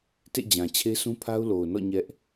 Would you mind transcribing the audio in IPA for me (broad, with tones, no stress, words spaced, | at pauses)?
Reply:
tḛ˦˨d͡ʑã˨ t͡ɕʰe˦sũ˦pʰa˦ʊ̯ lo˨ʊ̯nɔ̰˦˨ ɲɛ˦ʔ